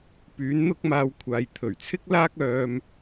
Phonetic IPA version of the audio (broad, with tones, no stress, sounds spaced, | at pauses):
p yː˨˥ n n̪ ʊ˥ k̚ m aː˧ w kʷʰ aː˨ j t̪ʰ ɵ˨˩ ɥ t͡sʰ ɪ˥ k̚ l aː˥ k̚ œː˥ m